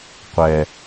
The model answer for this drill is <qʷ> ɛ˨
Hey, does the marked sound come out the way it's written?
yes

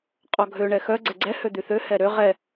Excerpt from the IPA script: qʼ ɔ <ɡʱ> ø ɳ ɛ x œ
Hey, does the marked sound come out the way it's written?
yes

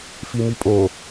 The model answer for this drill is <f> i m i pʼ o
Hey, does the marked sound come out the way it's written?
yes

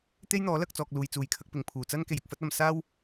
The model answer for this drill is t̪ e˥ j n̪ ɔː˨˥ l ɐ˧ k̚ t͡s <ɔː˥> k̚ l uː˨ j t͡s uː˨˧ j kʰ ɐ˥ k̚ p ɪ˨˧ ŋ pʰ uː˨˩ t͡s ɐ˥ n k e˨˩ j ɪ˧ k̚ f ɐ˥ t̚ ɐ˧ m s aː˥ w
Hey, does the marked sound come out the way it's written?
no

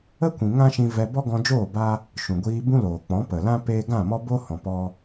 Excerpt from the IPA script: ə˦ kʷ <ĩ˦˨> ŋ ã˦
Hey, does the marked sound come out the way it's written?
no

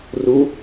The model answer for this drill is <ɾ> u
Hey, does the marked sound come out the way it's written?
no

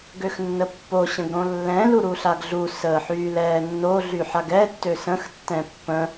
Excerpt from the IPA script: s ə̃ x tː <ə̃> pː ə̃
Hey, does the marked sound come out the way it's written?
no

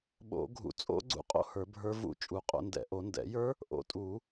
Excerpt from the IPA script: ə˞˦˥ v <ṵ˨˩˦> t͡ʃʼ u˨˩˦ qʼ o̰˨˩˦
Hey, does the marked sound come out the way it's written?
no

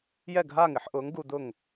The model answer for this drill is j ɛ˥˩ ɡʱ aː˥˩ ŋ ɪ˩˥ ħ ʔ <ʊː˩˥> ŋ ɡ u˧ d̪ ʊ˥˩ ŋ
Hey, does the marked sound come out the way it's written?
yes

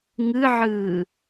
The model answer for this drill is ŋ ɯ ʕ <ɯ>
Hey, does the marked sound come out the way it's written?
no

